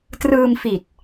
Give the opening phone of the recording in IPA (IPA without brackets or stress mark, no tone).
t